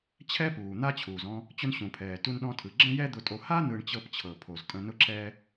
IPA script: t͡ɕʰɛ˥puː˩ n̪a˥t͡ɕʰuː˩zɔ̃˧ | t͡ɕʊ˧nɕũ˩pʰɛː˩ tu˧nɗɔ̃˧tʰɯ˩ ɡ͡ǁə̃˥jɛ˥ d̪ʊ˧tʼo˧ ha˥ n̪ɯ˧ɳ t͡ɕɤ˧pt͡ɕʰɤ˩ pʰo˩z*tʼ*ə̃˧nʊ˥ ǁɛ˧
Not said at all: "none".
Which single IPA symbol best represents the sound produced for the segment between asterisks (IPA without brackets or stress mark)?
tʼ